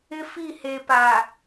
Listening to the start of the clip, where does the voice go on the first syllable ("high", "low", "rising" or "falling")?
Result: high